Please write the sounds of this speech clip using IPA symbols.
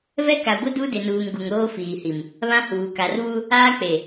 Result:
vɛ˦ka˨ɡʷɪ˦ du˦dɪ˨nuː˨ŋ ɡu˨ŋɾoː˦ fiː˨hi˨m | βã˦huː˨ ka˨rβu˦ | aː˦k͡pe˨

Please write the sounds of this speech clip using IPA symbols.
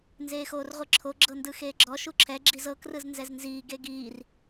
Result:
nzeːxoːrʁʷɯǁʰo ɡ͡ǁɤndɯxeːɡ͡ǁɔ ʃuǁʰɛ ɡ͡ǁizɤ krɯznzɛznziː ɡeɡiːr

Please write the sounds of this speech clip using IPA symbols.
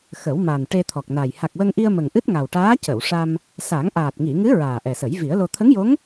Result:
xə˨˩˦wma˨˩n ʈe˧t̪ʰɔ˨˩k̚na˨˩j ha˨˩k̚wə˧ŋʔi˧ə̯ mə˨˩ŋʔɨ˦˥t̚ŋa˨˩wʈaː˧˥ cə˨˩˨wʂa˧m | sa˨˩˦ŋʔaː˨˩t̚ ŋi˨˩˨ŋɨ˧˥ ɹaː˨˩ʔɛ˨˩sə˨˩˦j vi˨˩˦ə̯lo˧ t̪ʰə˧˥ŋjo˧˥ŋ

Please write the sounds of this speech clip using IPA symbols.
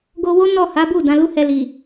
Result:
ɡo˧wo˦ nɔ˦˨ha˨˦bu˦˨ dã˨˦lu˦hɛ˧li˨

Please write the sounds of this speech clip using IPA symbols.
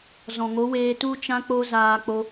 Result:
zɔ̃˨ŋo˨˦ weː˧tu˦ t͡ʃã˦ k͡po˧ zaː˧ k͡po˧

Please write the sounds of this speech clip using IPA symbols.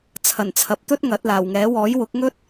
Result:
t͡sʰɐ˨˩nt͡sʰɐ˨p̚t̪ɵ˥t̚ ŋɐ˨˥t̚laː˨˩wŋɛː˨˥ wɔː˨˥jwʊ˨˥k̚ŋɵ˥t̚

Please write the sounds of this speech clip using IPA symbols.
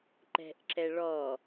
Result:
ǃɛ̤ʔǁɛ ɭɔ

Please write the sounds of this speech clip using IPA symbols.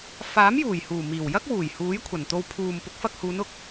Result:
faː˨˥mjuː˨˩jhuː˨˩ miː˨˩wjɐ˥k̚wuː˨˩j huː˨˥jkʷʰɐ˨˩nt̪o˧w pʰuː˨m pʊ˨˥k̚fɐ˧k̚huː˨˧n ʊ˨k̚

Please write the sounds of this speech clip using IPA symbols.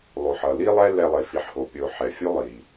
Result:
lˠo˨ħʌ˨ li˦lˠɛ˦ lɛ˧lˠe˨fi˨˦ħho˨ pʲo˧ħɛ˨ fʲu˦ lˠi˨

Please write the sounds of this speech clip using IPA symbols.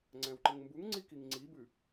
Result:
ŋ͡ǀæ̃wǃəŋmbuŋŋ͡ǀi kiŋŋ͡ǀibʉ

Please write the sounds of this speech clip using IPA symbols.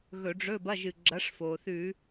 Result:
ɣɵ˧˩˧ɖ͡ʐɵ˧˥˧bɐ˧˥˧ʒɨ˩ ɡ͡ǁɐ˨˥ʂfo˩θʉ˧˩˧

